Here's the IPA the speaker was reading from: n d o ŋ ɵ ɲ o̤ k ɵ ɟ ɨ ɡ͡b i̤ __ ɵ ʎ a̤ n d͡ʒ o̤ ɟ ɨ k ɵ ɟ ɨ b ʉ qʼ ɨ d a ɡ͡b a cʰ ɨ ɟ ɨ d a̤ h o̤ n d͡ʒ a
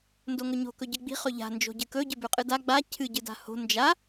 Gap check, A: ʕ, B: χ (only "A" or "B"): B